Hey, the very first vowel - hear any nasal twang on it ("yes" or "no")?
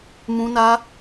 yes